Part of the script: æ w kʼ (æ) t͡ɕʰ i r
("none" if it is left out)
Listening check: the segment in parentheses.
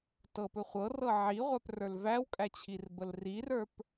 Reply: æ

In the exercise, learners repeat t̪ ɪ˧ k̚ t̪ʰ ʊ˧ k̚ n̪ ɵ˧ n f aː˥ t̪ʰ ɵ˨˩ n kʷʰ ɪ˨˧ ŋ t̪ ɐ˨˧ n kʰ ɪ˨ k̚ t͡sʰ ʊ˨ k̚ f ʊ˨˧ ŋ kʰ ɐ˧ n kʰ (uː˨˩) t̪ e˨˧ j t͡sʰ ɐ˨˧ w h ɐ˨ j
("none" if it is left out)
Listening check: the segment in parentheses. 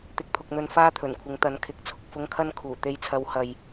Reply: uː˨˩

